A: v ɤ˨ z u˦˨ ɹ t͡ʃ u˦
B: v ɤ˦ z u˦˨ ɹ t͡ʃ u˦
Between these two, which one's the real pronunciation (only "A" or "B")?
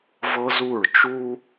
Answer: B